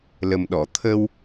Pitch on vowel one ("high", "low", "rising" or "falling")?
low